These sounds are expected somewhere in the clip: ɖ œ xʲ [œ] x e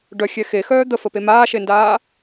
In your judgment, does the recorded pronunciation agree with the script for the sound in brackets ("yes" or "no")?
no